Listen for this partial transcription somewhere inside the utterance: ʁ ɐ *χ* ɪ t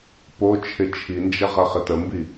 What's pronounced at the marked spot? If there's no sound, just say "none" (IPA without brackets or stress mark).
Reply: χ